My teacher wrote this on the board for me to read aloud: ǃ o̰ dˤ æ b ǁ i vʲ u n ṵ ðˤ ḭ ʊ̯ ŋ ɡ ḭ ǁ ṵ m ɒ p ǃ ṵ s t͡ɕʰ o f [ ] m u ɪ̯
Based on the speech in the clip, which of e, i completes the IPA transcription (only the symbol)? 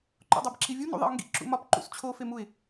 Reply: e